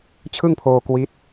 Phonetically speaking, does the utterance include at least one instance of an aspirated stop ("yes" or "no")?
yes